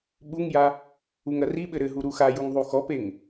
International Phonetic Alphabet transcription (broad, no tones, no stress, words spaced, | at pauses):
ɓuŋja | uŋɐriɓɘ ɾɘɦu ɾuxajuŋ ðˤuxɔpeŋ